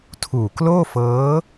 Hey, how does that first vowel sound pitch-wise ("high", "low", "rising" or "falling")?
low